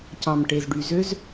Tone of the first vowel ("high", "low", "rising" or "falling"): low